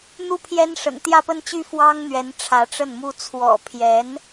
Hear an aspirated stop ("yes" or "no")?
yes